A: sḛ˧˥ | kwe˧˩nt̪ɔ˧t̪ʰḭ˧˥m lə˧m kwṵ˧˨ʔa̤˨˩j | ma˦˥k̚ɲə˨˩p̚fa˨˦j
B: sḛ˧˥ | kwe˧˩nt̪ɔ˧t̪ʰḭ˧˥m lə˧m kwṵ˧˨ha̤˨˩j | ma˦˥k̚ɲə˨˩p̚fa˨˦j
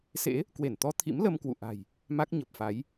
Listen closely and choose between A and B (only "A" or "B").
A